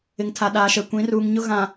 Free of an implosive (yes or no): no